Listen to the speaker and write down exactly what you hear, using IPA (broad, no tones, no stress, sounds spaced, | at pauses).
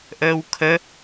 ʔ əː w kʰ ə